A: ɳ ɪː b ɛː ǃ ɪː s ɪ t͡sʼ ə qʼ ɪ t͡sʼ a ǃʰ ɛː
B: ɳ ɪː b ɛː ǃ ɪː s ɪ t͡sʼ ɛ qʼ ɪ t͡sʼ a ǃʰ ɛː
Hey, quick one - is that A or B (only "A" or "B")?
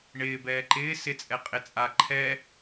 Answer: B